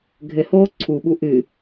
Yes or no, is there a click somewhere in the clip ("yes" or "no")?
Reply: yes